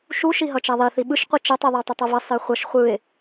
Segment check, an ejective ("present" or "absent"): absent